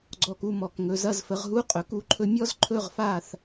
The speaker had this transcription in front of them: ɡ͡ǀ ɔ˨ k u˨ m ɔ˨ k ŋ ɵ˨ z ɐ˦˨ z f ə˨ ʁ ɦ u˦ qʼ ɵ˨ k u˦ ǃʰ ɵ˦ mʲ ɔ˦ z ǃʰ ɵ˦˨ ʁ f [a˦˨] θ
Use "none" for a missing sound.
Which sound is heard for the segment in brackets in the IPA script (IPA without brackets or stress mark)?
a˦˨